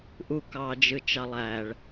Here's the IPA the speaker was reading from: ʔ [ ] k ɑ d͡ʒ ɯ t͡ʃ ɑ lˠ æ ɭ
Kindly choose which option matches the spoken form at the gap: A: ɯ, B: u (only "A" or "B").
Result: B